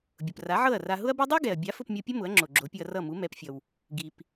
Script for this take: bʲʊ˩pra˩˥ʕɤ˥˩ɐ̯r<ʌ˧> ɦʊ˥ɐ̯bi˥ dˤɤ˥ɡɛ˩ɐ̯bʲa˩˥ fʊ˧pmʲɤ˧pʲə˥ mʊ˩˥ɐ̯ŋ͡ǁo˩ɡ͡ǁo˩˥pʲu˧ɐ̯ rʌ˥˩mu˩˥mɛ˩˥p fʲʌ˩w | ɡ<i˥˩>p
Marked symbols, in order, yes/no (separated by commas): no, no